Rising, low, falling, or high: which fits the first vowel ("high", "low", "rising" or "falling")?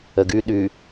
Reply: low